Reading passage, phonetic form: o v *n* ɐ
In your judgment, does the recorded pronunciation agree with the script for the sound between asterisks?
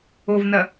yes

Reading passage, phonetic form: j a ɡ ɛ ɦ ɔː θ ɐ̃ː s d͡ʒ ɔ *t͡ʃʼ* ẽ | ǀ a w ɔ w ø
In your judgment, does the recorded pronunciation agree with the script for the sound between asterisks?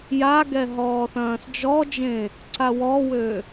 no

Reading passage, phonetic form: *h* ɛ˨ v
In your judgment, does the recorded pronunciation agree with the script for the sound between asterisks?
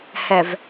yes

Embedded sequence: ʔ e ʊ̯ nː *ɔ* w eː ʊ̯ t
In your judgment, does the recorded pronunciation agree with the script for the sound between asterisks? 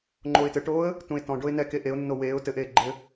no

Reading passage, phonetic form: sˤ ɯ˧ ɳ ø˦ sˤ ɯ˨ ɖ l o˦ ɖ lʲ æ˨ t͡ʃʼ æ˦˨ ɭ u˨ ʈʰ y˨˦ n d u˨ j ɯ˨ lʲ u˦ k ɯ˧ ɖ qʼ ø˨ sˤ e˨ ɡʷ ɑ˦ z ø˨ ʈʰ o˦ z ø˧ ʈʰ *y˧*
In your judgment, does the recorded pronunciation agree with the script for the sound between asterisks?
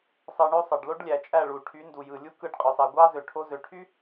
no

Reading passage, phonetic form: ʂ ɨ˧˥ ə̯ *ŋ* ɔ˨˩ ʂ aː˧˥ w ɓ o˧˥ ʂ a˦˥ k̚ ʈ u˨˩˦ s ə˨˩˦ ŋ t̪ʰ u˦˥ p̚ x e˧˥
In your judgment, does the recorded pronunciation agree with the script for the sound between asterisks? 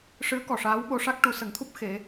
no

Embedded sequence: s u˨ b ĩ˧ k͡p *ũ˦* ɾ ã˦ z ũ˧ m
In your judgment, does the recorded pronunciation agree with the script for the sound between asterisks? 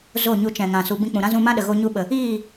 no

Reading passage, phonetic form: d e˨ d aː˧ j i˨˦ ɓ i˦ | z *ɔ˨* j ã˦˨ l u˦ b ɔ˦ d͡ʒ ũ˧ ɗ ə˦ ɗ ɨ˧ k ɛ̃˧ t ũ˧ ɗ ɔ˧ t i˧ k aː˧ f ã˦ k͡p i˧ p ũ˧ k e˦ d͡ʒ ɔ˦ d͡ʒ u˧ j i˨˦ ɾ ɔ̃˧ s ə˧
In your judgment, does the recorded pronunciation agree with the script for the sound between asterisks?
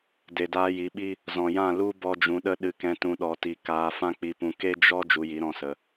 no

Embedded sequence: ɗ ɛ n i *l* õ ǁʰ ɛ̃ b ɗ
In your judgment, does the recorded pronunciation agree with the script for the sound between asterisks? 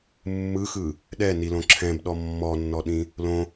yes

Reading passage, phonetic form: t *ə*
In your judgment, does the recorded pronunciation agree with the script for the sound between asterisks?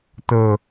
yes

